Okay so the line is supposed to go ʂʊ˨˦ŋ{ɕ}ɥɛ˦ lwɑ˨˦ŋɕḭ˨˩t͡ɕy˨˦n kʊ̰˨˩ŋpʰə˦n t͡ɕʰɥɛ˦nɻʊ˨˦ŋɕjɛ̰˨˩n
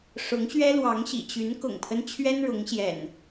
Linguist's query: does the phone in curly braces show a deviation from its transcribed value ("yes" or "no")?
no